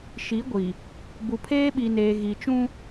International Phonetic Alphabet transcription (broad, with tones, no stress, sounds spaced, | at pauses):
ʃ i˨˦ ɡʷ i˨ | b u˨ pʰ eː˦ ɓ i˨ n eː˨ ɣ i˨ t͡ʃ ũ˦